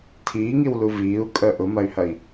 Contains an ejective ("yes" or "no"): yes